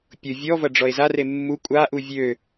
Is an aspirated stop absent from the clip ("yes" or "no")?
yes